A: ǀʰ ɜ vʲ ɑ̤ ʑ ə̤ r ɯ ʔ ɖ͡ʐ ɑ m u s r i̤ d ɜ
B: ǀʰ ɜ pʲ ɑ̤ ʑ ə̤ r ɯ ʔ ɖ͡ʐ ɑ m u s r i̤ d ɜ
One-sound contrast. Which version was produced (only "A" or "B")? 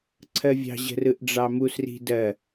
A